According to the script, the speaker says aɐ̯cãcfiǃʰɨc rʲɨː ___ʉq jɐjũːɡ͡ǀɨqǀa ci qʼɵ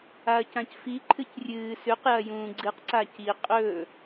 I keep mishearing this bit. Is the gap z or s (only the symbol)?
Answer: s